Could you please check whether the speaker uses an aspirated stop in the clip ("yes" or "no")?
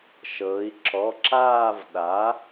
no